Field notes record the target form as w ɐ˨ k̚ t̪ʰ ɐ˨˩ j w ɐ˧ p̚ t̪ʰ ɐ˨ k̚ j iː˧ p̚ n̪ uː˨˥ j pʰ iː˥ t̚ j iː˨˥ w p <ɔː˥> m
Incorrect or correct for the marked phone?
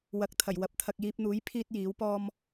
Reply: correct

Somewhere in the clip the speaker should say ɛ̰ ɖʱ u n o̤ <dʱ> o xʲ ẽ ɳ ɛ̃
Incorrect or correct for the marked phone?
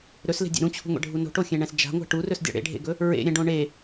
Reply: incorrect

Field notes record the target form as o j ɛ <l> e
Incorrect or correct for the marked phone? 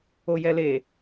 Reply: correct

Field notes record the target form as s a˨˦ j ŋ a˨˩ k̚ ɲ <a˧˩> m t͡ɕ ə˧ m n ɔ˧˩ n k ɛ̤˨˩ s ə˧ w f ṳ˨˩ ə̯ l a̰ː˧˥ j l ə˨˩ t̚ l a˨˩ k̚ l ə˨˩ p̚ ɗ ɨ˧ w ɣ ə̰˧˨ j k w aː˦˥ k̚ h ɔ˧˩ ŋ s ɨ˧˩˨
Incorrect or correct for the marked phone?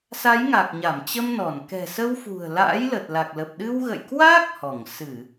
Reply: correct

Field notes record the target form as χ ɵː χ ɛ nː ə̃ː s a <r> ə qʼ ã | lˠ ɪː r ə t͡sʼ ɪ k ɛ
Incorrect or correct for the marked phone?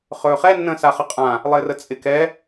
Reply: incorrect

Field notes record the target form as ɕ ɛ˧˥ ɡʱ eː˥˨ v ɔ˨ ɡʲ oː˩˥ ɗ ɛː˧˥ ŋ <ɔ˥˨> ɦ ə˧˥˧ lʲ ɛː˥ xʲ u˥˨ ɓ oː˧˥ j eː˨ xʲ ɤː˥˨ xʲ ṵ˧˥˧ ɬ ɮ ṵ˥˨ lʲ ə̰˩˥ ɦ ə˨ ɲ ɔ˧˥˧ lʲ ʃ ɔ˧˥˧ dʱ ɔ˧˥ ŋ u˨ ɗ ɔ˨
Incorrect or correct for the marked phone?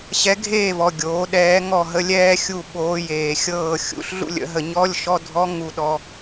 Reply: correct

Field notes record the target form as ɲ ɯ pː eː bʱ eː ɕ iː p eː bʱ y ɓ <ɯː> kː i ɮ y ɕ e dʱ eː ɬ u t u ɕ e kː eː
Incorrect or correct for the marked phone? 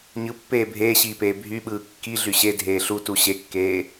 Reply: correct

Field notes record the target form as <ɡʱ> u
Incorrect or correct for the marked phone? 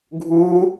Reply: correct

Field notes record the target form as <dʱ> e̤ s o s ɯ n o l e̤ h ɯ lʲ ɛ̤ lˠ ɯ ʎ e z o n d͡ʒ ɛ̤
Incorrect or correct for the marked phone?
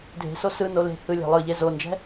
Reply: correct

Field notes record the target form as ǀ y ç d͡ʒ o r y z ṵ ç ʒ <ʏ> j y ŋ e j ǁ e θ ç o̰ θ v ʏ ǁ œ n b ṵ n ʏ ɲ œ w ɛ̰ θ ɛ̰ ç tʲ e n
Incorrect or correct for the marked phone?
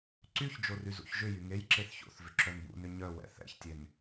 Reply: correct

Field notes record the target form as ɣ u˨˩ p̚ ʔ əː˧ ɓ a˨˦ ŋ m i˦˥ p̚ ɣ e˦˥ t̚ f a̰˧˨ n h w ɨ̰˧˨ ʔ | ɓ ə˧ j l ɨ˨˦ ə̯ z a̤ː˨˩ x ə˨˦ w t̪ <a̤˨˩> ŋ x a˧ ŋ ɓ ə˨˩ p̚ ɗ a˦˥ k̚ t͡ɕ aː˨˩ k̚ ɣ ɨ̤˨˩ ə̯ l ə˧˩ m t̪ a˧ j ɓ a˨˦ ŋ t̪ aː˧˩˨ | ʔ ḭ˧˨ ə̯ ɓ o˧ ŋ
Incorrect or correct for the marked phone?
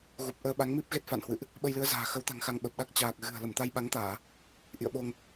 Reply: correct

